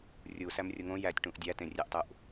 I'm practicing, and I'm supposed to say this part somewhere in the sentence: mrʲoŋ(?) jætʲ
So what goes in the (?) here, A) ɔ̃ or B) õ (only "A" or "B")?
B